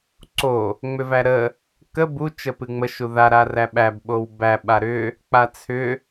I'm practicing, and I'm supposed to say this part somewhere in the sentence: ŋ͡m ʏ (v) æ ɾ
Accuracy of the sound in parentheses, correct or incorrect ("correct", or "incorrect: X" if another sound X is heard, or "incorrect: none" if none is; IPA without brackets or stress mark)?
correct